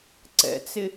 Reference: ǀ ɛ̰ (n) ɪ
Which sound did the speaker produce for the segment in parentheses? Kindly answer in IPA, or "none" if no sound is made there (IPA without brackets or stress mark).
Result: t͡s